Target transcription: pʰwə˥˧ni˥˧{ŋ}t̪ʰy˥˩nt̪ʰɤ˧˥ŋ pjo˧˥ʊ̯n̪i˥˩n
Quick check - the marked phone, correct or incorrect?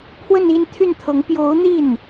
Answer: incorrect